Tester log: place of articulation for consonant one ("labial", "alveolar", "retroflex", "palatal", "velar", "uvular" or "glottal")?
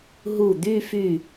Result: glottal